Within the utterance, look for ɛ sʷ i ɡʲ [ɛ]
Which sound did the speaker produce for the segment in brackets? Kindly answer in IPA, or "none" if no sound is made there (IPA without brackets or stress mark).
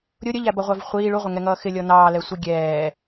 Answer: ɛː